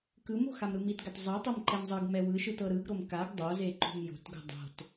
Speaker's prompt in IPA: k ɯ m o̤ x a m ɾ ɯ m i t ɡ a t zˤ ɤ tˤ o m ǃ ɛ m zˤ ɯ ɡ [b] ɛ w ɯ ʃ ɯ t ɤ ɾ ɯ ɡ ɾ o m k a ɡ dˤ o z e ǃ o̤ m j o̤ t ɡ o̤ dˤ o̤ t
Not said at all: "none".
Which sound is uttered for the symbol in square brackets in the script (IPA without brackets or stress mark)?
m